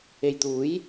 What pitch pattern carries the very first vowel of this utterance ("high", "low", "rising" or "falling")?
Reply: low